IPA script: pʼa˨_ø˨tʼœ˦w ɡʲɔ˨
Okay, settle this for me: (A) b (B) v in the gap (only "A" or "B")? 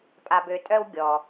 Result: A